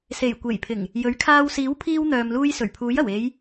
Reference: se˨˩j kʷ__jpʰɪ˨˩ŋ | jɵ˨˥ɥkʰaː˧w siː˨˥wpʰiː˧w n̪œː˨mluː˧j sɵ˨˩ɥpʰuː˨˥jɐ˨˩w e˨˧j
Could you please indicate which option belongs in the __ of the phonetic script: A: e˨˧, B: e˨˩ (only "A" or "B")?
B